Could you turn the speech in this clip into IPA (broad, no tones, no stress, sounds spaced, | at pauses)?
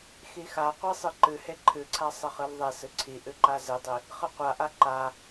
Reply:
x i x a qʷ e sˤ ɨ ǃ ɨ h e ǃʰ ɨ ǀʰ a sˤ e χ ɨ l ðˤ e s ɨ ǀʰ i ʔ ɨ ǃ a z ɨ dˤ i | χ ɨ qʷ a ʔ a ǃ a